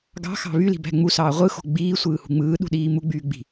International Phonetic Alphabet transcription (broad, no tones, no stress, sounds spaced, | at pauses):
ɡ ɑ̤ x ɑ̤ β y l i̤ b æ̤ ŋ͡m u s ɑː ʁʷ ɯ x o̤ ɡ͡b iː sʷ ɯː h ṳ ŋ͡m ɯː ɗ ṳ ɗ iː m u ɡ͡b yː ɡ͡b i̤